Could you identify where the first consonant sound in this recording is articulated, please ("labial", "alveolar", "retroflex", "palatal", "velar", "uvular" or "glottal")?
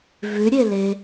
labial